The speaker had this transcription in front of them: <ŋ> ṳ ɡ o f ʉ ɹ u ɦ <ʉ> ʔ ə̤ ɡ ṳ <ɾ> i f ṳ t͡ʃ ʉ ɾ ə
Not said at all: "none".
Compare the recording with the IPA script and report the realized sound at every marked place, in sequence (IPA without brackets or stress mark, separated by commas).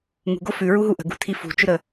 ŋ, u, tʰ